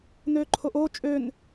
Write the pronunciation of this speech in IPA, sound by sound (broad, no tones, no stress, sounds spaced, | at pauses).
n øː ǃʰ o ʔ oː t͡ʃʼ ø n